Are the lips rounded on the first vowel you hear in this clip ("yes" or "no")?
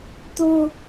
yes